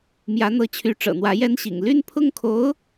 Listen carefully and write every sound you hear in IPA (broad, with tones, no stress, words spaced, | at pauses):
mjä˧˥n̪ɤ˧˥t͡ɕʰy˧˥ ʈ͡ʂɤ̰˨˩n̪wä˧˥jɛ˥n ɕḭ˨˩ŋ ly˥˧npʰʊ˥˩ŋkʰo˧˥ʊ̯